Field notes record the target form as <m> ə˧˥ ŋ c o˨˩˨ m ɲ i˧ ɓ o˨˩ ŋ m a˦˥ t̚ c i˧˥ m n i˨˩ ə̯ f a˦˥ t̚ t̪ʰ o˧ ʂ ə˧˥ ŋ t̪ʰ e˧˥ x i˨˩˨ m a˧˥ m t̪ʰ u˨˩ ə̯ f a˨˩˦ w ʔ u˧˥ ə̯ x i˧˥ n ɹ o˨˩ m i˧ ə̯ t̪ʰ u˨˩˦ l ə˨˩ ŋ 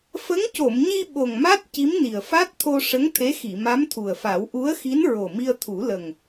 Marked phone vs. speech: incorrect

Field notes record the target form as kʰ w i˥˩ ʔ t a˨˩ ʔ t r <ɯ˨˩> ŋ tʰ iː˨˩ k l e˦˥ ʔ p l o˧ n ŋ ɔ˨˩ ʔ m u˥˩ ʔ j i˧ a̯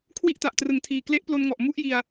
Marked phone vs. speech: incorrect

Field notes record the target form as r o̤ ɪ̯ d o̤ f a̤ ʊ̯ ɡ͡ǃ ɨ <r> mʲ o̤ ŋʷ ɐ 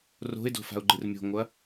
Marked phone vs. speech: correct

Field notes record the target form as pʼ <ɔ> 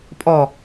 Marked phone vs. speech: correct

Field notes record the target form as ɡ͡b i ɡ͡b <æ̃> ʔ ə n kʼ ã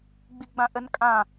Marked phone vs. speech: incorrect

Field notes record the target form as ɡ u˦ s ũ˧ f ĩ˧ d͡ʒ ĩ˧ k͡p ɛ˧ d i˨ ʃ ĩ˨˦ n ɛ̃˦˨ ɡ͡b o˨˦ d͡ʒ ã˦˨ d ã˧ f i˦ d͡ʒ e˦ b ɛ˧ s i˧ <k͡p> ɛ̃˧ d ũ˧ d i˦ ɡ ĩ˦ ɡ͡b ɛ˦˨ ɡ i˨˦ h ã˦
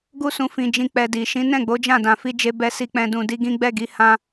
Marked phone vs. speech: correct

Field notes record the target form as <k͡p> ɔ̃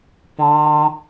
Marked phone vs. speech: incorrect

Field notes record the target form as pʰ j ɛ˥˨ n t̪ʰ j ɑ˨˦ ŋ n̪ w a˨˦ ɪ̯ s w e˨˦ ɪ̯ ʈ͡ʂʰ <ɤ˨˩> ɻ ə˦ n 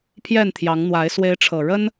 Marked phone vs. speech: correct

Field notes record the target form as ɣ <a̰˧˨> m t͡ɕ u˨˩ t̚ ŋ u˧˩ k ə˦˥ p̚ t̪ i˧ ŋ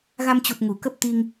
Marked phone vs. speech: incorrect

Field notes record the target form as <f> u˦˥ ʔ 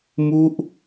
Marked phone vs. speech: incorrect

